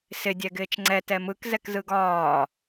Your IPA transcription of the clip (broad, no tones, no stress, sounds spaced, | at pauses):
s ɪ dʲ ɛ ɡ ɪː t͡ʃ ŋ͡ǀ ɛ t ɛ m ɯ k z ɛ k z ɯ ɡ ɒː